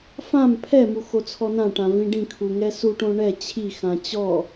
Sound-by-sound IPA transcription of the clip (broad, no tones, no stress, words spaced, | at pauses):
fãm pʰɛmu xot͡sʰɔnãʈã vĩɖĩkʰu ŋɛsuʈõ ɳɛ t͡ɕʰixã t͡ɕɔ